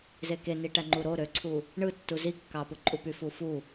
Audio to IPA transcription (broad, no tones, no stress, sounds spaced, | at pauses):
z e k e n i ʈ æ ŋ͡ǃ u ɾ o ɾ ø ǀʰ u | ɳ ɯ tː u z i kː ɑ p ɯ ǃʼ u p y f u f u